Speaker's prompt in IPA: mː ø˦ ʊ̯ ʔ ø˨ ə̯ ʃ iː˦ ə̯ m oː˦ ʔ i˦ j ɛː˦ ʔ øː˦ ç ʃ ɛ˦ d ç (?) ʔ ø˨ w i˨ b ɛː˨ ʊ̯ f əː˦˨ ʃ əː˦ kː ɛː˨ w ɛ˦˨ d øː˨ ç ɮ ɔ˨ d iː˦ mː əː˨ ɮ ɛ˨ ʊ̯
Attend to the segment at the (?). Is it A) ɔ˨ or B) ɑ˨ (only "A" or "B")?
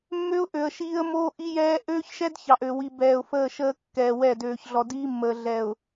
B